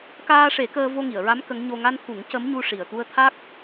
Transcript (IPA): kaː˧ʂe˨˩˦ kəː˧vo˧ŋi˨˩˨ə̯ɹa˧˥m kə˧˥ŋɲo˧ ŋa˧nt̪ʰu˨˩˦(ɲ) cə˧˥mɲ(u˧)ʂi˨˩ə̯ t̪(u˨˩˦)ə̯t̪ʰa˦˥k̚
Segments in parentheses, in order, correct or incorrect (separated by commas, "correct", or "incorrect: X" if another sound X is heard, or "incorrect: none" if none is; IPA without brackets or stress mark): incorrect: ŋ, correct, incorrect: u˧